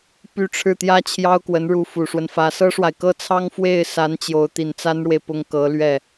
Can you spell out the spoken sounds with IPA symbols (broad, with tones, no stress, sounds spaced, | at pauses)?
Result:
p y˥˧ ʈ͡ʂʰ ɻ̩˥˩ t̪ j ä˥ t͡ɕʰ j ɑ˥ ʊ̯ k w ə˧˥ n ɻ u˧˥ f u˨˩ ʂ w ə˦ n f ä˧˥ s ɤ˥ ʂ w a˨ ɪ̯ k ɤ˥˩ t͡sʰ ɑ˥ ŋ f w e˥˩ ɪ̯ s a˧˥ n t͡ɕ j o˧˥ ʊ̯ t̪ i˨˩ n t͡s a˥ n ɻ w e˨ ɪ̯ p ʊ˥˩ ŋ k ɤ˧˥ l ɥ ɛ˥˩